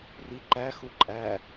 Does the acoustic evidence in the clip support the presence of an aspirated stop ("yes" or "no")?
no